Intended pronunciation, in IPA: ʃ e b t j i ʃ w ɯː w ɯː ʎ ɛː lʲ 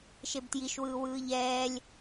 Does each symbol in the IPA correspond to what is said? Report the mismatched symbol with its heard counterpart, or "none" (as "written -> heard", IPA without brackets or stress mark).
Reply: none